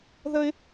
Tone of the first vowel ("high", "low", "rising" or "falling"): high